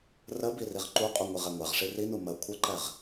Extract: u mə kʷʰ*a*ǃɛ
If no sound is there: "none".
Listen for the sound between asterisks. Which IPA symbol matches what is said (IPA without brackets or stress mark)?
ə